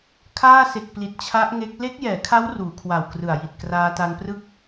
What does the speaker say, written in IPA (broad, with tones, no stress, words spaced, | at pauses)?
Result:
kʰaː˥˩se˨˩k̚pli˨˩t̚ t͡ɕʰa˦˥ʔ ŋe˦˥k̚ le˦˥k̚jɛː˩˦kʰa˦˥w ruː˩˦kʰwa˨˩wkrɯ˨˩a̯ ji˨˩t̚kraː˧ta˧nprɯ˥˩k̚